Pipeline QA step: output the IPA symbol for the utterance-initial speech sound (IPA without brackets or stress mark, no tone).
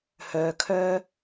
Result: h